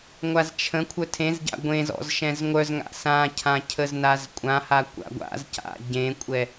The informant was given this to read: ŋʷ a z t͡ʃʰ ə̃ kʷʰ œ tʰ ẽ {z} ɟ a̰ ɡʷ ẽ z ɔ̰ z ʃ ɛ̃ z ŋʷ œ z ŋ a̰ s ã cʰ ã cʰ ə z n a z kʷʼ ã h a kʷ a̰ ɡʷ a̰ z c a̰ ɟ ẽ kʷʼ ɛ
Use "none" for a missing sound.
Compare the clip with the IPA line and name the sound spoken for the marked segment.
z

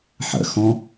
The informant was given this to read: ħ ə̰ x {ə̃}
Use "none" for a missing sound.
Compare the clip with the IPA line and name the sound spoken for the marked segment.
ɔ̃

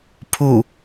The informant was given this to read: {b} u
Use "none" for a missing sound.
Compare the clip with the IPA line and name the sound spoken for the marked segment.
pʰ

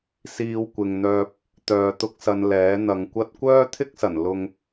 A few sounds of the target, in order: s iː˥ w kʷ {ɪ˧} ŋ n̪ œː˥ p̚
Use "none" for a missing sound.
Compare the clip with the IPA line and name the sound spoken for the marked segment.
ɪ˧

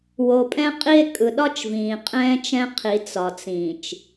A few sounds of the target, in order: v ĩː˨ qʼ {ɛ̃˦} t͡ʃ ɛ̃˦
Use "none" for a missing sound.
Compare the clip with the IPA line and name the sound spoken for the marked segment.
ɛ̃ː˦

